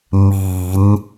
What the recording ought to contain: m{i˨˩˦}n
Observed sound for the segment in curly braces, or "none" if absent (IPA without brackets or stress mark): i˨˩˦